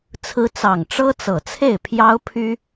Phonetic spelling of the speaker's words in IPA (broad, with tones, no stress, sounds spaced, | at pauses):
t͡sʰ ɹ̩˧˥ t͡s ɑ˨˩ ŋ ʈ͡ʂ ɤ˥ t͡s ɤ˨˩ t͡sʰ e˥˩ ɪ̯ pʰ j ɑ˥ ʊ̯ pʰ y˥